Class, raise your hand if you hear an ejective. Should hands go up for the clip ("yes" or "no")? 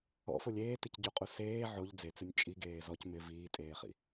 yes